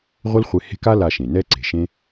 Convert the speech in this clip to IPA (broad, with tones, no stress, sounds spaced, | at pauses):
ʁʷ ɘ˦ l χʷ e˧ h e̤˦ k a˦ l a˧ ʃ ẽ˨ n ɛ˦ ǀ e̤˨ ʃ ẽ˦